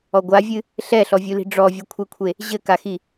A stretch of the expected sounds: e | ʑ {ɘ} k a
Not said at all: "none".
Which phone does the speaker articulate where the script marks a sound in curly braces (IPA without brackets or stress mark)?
ɘ